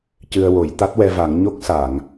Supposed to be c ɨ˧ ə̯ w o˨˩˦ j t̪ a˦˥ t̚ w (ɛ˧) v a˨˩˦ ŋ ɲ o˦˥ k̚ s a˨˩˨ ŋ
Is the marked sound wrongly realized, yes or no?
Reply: no